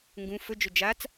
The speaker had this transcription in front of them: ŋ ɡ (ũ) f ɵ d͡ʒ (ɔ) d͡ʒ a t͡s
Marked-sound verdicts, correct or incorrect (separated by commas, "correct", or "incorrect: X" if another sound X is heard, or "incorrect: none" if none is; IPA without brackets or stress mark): correct, incorrect: ɵ